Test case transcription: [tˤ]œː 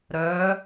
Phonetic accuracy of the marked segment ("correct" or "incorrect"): incorrect